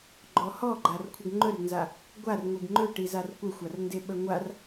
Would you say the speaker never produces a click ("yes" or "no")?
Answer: no